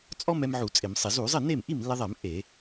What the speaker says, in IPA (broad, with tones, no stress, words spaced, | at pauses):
t͡sʼɔ˥mɛ˧m ʕu˧˩˧t͡sʼɪ˧˩˧msˤɪ˧˩˧ zu˧˩˧zˤɪ˥˩ne˥˩m ʔi˥˩mlːe˧ðˤɛ˧˩˧m ʔe˧˩˧